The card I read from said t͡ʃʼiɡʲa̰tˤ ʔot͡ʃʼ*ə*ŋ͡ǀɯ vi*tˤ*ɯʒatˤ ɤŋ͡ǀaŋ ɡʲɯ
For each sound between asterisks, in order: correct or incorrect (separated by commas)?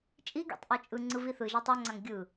incorrect, incorrect